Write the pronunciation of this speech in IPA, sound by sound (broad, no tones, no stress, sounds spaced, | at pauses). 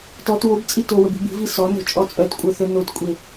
t ɔ t w o b t͡sʼ i t o w ə b i̤ b i̤ v i s ɔ n o̤ t͡ʃʼ ɔ t͡sʼ œ t kʷʼ œ θ œ n o t kʷʼ e